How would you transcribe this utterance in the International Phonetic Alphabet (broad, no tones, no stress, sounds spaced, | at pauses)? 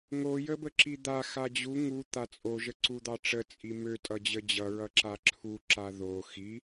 ŋ o j ə b ə ǁ i d̪ a x a d͡ʑ u ŋ u t̪ a t͡sʼ o ʒ ə ǀ u d̪ ɑ ʈ͡ʂ ə t͡sʼ i m ø tʼ ʌ d͡ʑ ə d͡ʑ ʌ ɹ ʌ ǁ a ǁʰ u ǁ a ð o x i